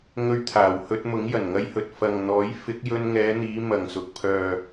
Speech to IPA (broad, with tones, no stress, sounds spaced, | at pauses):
ŋ ɵ˧ ɥ t̪ʰ aː˨˩ w h ɵ˧ t̚ m ʊ˨˥ ŋ j ɐ˨˩ n ŋ ɐ˧ j h ɵ˨ t̚ f ɐ˨ ŋ n̪ ɔː˨˥ j f ɪ˨˥ k̚ j ɵ˧ n ŋ ɛː˨˧ n̪ iː˨˧ m ɐ˨˩ ŋ s ʊ˨ k̚ pʰ œː˨